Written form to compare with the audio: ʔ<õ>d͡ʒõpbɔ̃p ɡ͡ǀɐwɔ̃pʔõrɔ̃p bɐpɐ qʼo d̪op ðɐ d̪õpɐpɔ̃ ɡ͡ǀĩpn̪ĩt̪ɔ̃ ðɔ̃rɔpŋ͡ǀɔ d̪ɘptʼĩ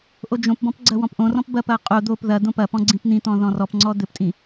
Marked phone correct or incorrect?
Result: incorrect